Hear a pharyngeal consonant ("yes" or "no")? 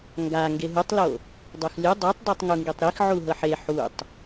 yes